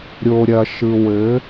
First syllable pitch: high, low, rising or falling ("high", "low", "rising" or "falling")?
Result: low